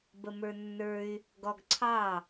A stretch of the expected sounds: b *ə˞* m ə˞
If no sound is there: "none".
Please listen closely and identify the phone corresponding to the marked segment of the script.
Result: ə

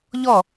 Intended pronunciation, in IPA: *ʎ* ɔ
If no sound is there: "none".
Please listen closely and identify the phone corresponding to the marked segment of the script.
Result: ʎ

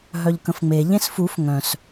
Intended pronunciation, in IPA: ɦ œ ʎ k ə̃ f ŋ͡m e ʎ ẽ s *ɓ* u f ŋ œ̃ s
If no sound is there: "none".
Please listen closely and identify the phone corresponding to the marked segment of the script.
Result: f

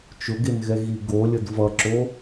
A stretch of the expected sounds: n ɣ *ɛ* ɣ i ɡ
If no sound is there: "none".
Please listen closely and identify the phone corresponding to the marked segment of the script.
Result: ɛ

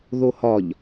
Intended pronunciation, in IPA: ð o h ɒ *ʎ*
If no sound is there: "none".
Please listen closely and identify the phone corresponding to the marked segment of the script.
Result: ʎ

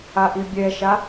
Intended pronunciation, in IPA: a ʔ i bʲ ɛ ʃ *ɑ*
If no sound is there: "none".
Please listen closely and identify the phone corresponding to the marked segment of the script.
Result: a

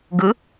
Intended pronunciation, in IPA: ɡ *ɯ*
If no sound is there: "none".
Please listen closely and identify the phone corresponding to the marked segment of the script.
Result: ɯ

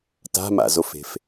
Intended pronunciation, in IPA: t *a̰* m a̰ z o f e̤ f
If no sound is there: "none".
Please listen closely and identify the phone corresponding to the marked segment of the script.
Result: a̤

